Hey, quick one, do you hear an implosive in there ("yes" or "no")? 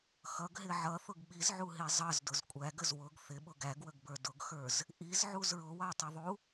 yes